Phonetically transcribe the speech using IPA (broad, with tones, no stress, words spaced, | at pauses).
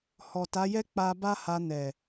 hɔ˨ta˨˦jɛ˦ k͡pa˧ba˦ha˧ nɛ˨